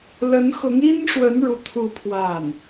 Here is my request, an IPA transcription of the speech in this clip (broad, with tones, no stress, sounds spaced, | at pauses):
l ə˧˥ n x ʊ˧˥ ŋ i˥ n ʂ w ə˧˥ n ɻ u˥ t̪ʰ u˥˧ pʰ w a˥˩ n